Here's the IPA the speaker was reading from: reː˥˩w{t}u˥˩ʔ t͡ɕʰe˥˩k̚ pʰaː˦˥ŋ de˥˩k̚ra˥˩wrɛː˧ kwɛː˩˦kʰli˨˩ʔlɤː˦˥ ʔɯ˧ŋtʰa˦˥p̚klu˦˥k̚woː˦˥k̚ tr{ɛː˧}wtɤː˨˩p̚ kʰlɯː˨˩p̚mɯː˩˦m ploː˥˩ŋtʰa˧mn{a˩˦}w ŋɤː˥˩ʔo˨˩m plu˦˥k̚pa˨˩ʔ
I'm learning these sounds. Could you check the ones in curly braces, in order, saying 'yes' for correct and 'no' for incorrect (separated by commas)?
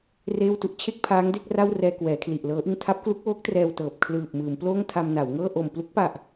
yes, yes, yes